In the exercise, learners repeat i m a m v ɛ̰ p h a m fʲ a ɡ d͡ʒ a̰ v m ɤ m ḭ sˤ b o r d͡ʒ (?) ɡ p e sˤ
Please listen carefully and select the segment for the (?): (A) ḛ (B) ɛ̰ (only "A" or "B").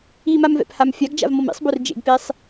A